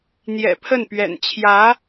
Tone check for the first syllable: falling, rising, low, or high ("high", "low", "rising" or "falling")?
low